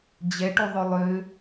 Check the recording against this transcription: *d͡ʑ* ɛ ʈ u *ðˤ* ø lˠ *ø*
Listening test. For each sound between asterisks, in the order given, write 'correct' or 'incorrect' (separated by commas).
correct, correct, correct